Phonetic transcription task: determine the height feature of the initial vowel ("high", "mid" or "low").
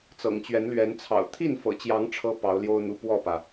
mid